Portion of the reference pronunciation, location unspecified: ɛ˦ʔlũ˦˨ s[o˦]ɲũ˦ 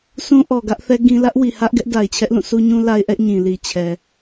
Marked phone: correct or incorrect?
incorrect